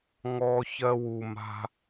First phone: ŋ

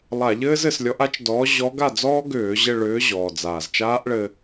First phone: lˠ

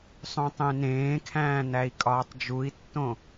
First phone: sˤ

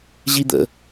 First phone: ʑ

